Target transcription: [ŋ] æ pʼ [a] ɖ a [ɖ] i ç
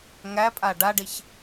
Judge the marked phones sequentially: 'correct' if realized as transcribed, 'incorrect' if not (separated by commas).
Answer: correct, correct, correct